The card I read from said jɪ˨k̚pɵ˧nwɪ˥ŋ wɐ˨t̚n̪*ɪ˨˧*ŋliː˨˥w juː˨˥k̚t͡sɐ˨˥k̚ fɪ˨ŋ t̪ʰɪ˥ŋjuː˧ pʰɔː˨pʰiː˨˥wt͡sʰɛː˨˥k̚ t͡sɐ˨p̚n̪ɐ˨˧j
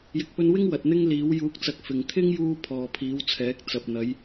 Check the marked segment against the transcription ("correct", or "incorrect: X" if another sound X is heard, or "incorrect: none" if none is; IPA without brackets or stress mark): incorrect: ɪ˥